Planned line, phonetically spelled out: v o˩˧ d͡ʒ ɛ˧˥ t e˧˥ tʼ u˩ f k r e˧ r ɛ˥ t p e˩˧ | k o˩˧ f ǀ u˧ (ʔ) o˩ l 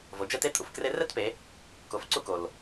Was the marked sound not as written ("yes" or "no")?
yes